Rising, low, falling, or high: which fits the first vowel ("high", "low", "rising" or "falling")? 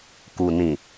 low